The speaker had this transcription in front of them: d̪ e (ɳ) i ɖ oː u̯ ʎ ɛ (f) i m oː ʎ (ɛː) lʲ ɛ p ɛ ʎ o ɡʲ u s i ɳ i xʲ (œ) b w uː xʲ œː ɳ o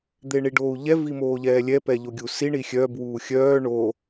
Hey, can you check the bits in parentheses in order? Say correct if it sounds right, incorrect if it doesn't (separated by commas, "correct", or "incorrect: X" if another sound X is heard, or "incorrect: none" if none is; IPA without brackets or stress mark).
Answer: correct, incorrect: v, correct, correct